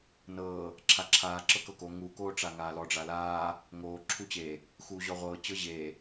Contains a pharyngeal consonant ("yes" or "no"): no